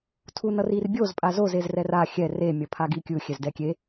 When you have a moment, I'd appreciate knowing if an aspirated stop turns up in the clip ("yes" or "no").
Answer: yes